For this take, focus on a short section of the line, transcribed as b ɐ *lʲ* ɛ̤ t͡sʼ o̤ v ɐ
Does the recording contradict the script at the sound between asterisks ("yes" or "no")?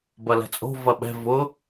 yes